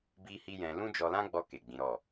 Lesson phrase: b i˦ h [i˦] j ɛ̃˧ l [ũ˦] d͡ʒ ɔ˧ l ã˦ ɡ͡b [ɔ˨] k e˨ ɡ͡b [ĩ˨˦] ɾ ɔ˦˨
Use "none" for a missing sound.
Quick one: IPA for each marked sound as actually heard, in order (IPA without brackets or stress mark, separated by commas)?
i˦, ũ˦, ɔ˧, ĩ˨˦